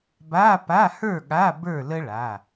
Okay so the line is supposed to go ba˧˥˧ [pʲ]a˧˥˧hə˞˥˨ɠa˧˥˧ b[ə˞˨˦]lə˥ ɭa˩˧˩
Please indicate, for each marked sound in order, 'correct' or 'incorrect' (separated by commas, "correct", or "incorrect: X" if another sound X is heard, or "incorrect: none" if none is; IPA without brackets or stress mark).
incorrect: p, incorrect: ə˞˥˨